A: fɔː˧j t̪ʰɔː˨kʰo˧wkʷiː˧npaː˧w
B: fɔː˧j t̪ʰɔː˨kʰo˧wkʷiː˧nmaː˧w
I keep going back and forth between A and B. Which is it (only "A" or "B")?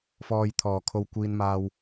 B